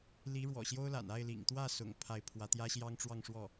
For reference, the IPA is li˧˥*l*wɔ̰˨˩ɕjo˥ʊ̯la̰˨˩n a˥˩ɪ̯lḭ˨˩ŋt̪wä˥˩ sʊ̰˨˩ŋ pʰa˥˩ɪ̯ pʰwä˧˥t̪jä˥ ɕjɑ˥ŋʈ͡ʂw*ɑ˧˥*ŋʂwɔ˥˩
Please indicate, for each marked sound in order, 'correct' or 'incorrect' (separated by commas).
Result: incorrect, incorrect